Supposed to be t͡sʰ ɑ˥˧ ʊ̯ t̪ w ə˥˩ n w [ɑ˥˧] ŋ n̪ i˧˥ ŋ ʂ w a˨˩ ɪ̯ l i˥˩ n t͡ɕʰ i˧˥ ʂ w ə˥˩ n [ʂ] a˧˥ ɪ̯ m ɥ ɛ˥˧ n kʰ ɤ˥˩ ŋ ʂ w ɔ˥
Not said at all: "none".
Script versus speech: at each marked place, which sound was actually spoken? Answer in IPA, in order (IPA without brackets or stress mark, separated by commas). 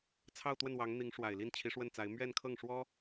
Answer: ɑ˧˥, t͡s